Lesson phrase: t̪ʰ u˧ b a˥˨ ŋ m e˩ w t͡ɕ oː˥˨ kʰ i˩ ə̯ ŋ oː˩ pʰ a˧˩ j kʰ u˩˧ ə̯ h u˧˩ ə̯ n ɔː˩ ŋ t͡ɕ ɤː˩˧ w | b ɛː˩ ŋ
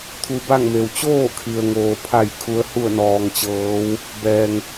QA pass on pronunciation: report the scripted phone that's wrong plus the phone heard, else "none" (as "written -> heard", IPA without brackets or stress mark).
none